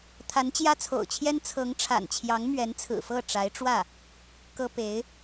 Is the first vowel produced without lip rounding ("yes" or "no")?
yes